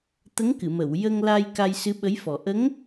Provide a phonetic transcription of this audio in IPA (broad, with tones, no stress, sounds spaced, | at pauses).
t̪ ə˧˥ ŋ k ɨ˨˩˨ m ə˨˩˨ w j ə˧ ŋ l a˧ j k a˧ j s ɨ˧˥ ɓ ə˧˥ j f ɔ˨˩ ʔ ə˧˥ ŋ